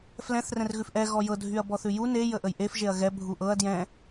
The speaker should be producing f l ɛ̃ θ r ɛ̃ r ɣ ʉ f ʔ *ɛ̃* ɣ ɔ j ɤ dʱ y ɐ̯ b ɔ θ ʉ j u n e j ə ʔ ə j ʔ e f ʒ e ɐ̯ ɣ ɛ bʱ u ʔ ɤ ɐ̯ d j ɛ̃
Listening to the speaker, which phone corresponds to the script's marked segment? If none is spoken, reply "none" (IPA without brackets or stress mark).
ɛ